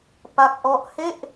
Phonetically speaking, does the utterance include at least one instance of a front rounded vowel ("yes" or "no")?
no